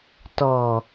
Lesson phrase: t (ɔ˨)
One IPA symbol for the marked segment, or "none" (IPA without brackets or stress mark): ɔ˨